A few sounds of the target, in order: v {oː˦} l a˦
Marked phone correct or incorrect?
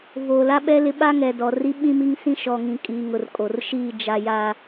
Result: incorrect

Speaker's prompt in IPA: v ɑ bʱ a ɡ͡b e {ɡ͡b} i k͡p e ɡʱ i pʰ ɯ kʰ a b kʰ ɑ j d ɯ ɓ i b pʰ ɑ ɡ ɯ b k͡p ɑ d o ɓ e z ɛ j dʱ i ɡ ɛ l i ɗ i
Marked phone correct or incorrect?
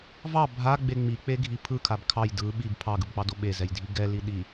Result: incorrect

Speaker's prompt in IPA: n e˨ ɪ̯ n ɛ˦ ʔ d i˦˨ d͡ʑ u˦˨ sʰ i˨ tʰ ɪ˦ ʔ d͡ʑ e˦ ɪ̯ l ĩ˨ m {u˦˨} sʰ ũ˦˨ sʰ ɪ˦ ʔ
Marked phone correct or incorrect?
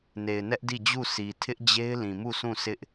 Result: correct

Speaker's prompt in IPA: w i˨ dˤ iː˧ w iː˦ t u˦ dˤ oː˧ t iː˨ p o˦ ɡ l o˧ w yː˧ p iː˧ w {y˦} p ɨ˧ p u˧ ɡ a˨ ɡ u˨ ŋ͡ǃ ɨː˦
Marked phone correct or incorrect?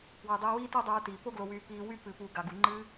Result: correct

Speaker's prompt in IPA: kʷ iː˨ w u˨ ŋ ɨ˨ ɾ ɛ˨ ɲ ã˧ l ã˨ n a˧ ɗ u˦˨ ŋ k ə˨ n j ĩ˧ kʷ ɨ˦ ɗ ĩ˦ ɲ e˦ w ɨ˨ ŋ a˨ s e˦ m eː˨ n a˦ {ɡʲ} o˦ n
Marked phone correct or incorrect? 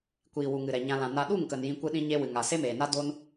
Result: incorrect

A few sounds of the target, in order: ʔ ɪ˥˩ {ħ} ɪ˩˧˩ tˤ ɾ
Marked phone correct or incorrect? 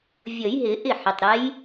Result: correct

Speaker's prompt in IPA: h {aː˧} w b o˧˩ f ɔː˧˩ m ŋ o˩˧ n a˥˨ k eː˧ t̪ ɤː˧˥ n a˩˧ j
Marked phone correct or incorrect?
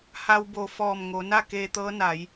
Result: incorrect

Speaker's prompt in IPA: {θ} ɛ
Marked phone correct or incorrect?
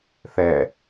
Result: correct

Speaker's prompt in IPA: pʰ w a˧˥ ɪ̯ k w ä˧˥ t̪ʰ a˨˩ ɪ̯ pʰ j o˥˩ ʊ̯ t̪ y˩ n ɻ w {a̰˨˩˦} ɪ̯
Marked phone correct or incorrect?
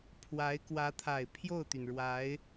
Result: incorrect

